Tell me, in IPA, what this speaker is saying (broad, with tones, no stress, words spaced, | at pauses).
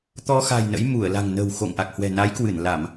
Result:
t̪ɔ˧xa̤˨˩j nə̰˧˥j mu˧˩ə̯la̤˨˩ŋnə̤˨˩w xo̰˧˨ŋʔa˨˩k̚hwɛ̤˨˩ na˨˦jkwɨ˧˩n la˧˩˨m